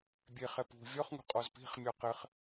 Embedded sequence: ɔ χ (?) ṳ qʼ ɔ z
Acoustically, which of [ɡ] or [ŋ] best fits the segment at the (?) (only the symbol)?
ŋ